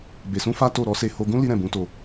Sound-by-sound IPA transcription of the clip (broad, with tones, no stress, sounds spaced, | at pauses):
b e˧ s ũ˦ f a˦ t o˦˨ ɾ ɔ˧ s e˧ h o˧ ɡ ũ˦ l i˦ ɾ ɛ̃˦˨ b ũ˨˦ t o˧